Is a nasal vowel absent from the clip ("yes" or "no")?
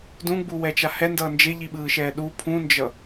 no